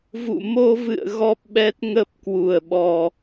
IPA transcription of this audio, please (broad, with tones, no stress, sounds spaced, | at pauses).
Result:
v ṵ˧˨ m o˧ v ɨ̰˧˨ ə̯ ɣ ɔ˦˥ p̚ ɓ ɛ˦˥ t̚ ŋ ə˦˥ p̚ k w u˨˩ ə̯ ɓ ɔ˨˩